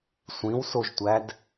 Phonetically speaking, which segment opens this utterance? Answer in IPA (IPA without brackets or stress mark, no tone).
sʷ